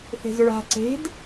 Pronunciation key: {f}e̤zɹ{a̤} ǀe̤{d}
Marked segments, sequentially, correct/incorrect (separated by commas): incorrect, correct, correct